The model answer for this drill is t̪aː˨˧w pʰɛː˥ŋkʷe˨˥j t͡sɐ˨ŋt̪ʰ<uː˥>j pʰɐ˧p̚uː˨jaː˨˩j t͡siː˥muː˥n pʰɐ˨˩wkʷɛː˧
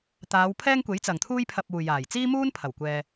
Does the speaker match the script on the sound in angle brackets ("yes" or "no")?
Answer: yes